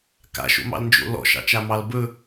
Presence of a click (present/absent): absent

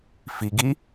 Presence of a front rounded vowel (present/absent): absent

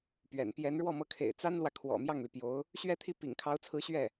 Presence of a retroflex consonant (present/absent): present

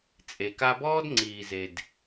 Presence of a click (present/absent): present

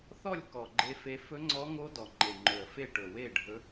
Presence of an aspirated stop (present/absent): absent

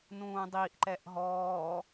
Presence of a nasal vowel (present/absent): present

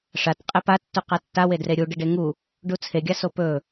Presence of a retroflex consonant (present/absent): present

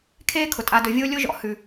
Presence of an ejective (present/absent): present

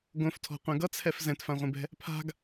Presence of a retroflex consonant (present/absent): absent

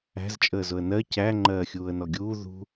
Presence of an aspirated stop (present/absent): absent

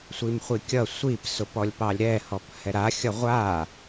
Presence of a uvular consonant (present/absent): present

